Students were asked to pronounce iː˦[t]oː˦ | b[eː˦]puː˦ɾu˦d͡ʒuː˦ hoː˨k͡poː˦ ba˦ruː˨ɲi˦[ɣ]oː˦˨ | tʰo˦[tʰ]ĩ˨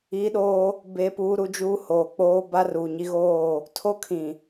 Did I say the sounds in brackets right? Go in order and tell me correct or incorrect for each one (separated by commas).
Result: incorrect, correct, correct, incorrect